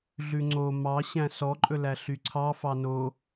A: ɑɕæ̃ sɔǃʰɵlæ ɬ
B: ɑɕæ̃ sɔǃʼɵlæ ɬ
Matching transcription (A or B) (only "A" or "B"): B